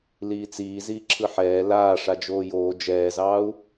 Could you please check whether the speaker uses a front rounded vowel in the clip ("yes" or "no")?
no